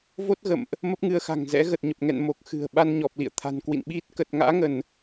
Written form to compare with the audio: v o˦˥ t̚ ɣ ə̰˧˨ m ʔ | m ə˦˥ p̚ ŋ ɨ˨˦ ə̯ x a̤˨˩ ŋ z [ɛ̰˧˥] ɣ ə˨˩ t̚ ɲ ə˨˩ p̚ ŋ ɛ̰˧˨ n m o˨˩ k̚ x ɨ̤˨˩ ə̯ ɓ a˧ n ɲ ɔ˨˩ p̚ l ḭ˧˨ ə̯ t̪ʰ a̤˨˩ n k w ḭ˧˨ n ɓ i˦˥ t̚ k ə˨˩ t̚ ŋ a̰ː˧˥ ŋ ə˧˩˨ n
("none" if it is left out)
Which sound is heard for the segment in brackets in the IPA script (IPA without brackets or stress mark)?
ɛ̰˧˥